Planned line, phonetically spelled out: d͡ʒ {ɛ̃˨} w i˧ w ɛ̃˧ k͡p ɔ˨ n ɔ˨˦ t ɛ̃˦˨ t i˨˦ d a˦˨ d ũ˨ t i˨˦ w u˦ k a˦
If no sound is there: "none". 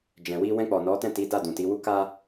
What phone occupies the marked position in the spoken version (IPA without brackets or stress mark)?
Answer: ɛ̃˨